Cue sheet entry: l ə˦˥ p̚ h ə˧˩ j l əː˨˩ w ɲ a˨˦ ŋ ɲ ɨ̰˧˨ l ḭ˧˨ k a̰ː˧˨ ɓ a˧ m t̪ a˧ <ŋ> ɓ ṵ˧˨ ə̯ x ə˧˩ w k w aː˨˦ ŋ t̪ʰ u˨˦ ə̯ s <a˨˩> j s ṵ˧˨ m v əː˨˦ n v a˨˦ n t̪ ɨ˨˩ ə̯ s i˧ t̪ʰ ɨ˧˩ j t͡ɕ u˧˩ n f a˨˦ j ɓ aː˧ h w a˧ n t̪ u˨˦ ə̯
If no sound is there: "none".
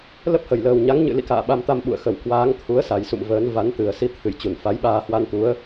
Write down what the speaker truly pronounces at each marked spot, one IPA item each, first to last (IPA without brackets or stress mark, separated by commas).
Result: m, a˨˩